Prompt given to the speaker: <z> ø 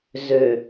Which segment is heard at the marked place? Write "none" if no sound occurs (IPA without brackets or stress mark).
z